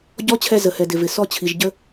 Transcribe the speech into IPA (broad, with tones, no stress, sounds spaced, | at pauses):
ɟ ɔ˧˥ t͡ɕʰ ɛ˧ z ə˩ h ɛ˩ d ɪ˩ v ɪ˩ s ɔ˧ t͡ɕʰ i˩ ʒ ɟ ə˧